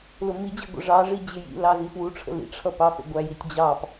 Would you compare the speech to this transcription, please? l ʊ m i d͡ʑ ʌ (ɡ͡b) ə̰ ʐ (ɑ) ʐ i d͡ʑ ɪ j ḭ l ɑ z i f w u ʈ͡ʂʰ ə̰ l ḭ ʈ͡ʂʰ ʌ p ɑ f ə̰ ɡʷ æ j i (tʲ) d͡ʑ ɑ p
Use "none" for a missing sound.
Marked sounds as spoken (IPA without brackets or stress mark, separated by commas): ɡʷ, ɑ, tʲ